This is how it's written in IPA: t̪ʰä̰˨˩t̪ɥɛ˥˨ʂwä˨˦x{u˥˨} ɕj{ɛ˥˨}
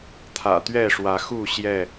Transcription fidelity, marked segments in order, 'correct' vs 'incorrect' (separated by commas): correct, correct